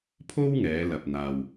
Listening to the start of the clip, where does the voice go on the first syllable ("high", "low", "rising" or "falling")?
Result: high